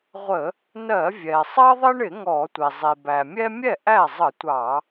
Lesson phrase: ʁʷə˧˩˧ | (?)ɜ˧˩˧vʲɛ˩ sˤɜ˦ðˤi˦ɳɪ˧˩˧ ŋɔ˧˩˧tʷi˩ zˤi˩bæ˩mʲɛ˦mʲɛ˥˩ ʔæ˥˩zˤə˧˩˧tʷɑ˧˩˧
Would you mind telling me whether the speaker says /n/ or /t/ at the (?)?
n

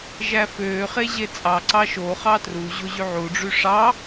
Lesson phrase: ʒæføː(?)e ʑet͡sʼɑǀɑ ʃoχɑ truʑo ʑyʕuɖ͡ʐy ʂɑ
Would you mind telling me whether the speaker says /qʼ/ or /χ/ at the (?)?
χ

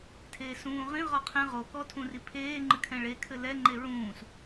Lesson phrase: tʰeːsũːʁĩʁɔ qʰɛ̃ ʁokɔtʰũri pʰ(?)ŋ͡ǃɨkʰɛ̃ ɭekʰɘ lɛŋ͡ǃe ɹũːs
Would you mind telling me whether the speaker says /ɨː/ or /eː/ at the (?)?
eː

